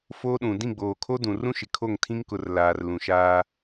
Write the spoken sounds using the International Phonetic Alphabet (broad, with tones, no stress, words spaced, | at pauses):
foː˦ɗũ˨ dĩ˦˨ɡ͡boː˨kʰo˦ dũ˨ rũ˦ʃɪ˨kʰo˦˨ŋ tʰĩ˦ŋkʊ˨r laː˨r lũ˨ʃaː˦